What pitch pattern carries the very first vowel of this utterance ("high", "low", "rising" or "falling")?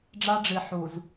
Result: high